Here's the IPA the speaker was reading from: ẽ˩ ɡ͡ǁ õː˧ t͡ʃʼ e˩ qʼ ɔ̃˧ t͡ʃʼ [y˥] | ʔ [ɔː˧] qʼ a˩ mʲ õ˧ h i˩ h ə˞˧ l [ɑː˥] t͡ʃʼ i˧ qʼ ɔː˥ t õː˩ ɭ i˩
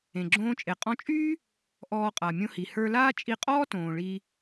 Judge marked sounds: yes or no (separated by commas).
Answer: no, yes, no